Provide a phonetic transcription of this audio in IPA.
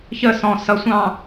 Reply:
ç ə s ɔ̃ s ʌ sʷ ɑ̃

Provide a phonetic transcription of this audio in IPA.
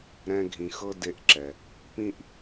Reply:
ɾ ɛ̃˦ ɡʱ ĩ˨ x ɤ˥ d e˦ ʔ ǁ ɛ˩ | p ĩ˥ ʔ

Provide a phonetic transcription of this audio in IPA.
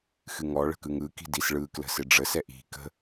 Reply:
x ɨ ŋ ɔ ɭ ə̤ k ɯ ŋ ɯ k i̤ d i s ɭ ɯ k l ə̤ s ɪ ɖ͡ʐ ə s ɛ ʔ i̤ k ə̤

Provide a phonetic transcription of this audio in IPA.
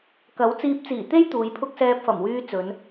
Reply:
k ɐ˨˥ w t͡s iː˧ p̚ t͡s iː˨˩ t̪ e˥ j t̪ uː˨˧ j pʰ ʊ˥ k̚ s ɛː˧ p̚ f ɐ˨˩ m w yː˧ t͡s ɵ˨˧ n

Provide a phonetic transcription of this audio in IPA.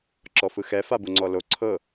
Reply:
ǁ ɔ f ɯ x ɛ f a b u ŋ͡ǀ ɔ l o ǀʰ ɤ

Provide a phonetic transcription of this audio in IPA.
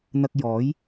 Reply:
n̪ ɐ˧ k̚ j ɔː˨˥ j

